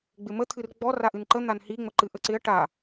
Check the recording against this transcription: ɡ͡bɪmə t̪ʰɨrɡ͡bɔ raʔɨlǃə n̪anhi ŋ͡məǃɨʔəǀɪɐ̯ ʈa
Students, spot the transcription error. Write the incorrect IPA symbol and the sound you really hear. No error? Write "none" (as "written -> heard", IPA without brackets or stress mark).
l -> n